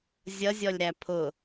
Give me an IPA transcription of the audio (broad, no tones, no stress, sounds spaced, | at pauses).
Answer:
zʲ ʌ zʲ ɔ lʲ ɾ æ pʰ ʊ